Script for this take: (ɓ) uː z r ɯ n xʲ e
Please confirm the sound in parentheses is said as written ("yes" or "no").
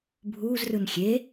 no